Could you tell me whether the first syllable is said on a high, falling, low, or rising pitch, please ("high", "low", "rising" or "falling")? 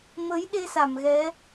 rising